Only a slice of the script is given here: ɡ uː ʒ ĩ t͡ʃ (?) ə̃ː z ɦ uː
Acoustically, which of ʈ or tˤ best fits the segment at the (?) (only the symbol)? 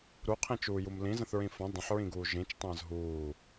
tˤ